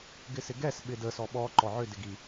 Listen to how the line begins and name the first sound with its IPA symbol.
ɡ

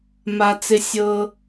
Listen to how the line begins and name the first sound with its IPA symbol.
m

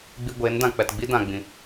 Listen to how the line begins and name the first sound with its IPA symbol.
ɡ͡b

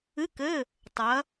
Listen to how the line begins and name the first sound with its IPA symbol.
ɨ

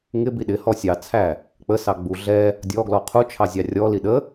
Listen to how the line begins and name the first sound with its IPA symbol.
ŋ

